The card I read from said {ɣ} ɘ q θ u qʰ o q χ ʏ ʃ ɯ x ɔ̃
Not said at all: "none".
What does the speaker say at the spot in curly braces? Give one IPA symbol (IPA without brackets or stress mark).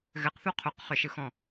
ɣ